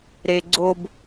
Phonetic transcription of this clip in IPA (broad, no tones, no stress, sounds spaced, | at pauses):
ɾ e ɡ͡ǀ o b